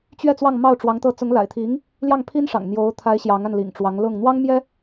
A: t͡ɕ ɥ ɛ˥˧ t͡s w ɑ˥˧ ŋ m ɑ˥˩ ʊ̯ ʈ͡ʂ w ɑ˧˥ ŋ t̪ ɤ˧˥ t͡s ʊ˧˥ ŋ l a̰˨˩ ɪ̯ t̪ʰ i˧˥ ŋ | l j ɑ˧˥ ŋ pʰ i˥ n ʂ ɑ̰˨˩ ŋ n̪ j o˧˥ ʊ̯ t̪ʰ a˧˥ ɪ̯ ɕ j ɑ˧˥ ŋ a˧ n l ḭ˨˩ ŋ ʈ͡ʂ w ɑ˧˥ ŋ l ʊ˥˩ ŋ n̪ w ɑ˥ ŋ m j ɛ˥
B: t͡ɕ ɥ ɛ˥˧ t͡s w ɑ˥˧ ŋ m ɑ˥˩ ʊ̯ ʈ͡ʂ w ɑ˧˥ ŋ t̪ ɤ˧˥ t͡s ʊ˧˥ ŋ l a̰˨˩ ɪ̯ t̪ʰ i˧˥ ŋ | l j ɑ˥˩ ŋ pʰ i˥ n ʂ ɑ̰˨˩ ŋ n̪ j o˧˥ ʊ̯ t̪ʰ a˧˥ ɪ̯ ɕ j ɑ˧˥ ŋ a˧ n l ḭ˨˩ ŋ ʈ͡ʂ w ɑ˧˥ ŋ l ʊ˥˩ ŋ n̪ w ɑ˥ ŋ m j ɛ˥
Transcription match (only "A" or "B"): B